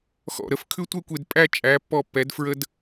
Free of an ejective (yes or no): no